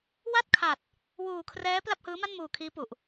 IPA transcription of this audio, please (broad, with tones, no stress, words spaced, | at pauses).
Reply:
wa˥˩t̚kʰa˨˩t̚ | wuː˨˩kʰrɛː˦˥ pla˥˩p̚hɯː˦˥ ma˥˩nmuː˨˩kʰiː˦˥pu˨˩ʔ